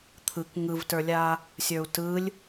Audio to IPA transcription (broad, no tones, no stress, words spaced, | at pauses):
t̪ʰɯk ŋɯvtə˞lʲa | sʲə˞u̯tɯlʲ